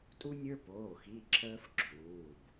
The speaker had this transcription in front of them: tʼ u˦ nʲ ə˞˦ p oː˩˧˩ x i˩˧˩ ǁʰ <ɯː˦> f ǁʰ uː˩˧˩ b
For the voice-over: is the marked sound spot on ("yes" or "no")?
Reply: no